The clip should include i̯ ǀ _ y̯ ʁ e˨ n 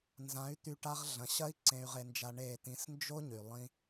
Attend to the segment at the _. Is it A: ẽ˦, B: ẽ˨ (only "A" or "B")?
B